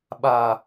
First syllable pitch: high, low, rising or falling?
low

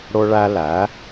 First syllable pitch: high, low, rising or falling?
high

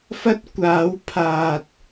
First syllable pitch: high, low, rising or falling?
high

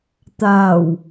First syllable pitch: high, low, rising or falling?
low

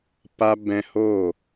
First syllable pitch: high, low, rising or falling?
high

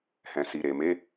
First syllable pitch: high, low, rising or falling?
low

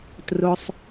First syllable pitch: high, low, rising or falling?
high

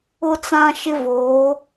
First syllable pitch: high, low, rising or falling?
high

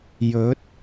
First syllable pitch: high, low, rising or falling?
rising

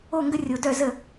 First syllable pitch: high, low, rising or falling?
falling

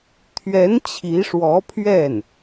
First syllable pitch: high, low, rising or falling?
rising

